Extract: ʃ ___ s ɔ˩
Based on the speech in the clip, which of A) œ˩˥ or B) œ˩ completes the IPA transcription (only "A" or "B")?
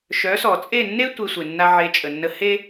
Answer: A